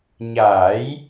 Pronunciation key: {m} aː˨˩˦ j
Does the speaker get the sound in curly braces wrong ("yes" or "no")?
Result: yes